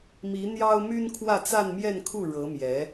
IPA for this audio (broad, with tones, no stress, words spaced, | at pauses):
mi˧˥ n̪jɑ˥ʊ̯my˥n kʰwä˥˧t͡sa˥˧nmjɛ˥˧nkʰu˥˩ ɻɤ˧˥mjɛ˧˥